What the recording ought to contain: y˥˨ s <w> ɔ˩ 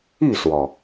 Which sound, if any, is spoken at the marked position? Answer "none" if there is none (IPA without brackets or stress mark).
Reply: w